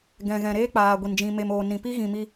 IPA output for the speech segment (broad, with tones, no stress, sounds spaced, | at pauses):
ɡ ɛ̃˨ ɣ ɛ̃˨ ɾ eː˦ k͡p aː˨ ɡʷ i˨ n d͡ʒ ĩ˧ m e˧ m oː˨ n ĩ˨ p i˦ ɣ ĩ˨ m i˧